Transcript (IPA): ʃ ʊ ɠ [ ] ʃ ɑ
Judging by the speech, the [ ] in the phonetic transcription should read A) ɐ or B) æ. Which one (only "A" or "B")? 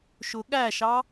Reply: B